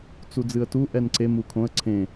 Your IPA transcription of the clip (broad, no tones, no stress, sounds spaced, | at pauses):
t͡s u d͡z ɨ ə̯ t u ʔ ɛ n ǀ e m u kʰ õ ə̯ ǀʰ ẽ